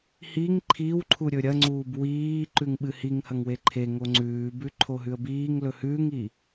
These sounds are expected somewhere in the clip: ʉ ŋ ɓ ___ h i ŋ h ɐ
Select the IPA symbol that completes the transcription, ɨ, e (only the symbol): ɨ